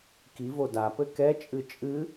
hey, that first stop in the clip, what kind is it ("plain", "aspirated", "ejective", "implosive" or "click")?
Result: plain